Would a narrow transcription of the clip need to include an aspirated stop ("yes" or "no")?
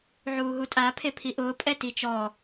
yes